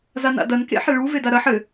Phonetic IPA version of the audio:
z a n a̰ d ɐ n k ḛ ħ ɛ ɭ u v e d a ɾ ɐ ħ ɘ

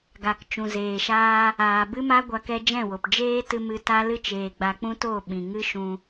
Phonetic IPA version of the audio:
ɡ a˨ k t͡ʃ ũ˨ z eː˨ ʃ aː˧ | aː˨ b ɨ˦ m a˦ ɡʷ a˧ k ɛ˧ d͡ʒ ɛ̃˦˨ w o˨ p d͡ʒ eː˦ t ɨ˧ m ɨ˧ t a˦ l ɨ˦ t͡ʃ eː˨ ɡ͡b a˧ k͡p ũ˦ t o˦˨ ɓ ĩ˨ ŋ ɨ˦ ʃ ũ˧

